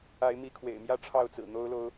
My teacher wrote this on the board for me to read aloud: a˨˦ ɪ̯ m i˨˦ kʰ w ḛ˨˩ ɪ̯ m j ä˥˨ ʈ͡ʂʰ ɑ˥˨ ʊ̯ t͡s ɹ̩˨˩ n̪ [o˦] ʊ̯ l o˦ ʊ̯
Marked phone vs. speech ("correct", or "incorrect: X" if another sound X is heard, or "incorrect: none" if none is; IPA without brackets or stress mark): correct